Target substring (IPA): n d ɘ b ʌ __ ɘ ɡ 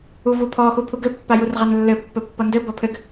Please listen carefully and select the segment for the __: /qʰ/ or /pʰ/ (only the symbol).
pʰ